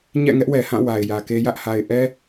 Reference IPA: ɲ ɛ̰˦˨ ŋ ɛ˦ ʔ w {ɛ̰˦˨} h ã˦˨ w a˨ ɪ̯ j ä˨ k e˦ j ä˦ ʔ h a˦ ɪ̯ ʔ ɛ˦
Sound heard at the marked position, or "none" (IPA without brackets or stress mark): ɛ˨